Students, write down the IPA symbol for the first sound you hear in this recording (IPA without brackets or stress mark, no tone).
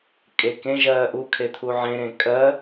kʼ